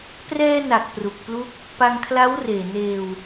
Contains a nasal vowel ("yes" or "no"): no